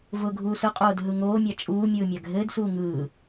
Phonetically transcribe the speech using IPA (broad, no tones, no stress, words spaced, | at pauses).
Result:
vʊːɡʱuːsʊqʼoːd ɦɯŋoːmʲa t͡ʃʼuː mʲɯːmʲaɡʱɘːdsuː ŋɯː